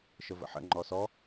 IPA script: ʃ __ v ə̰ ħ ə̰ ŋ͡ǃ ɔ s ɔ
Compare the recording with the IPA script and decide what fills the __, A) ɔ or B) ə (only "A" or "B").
B